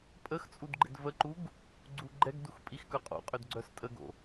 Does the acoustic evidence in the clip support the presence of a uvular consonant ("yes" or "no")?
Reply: yes